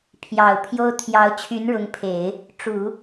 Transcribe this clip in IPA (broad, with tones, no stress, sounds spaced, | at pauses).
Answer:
pʰ j ɑ˨˩ ʊ̯ pʰ j o˥ ʊ̯ t̪ʰ j ɑ˧˥ ʊ̯ t͡ɕʰ y˧˥ n ɻ ʊ˧˥ ŋ pʰ e˨˩˦ ɪ̯ | ʈ͡ʂ u˨˩˦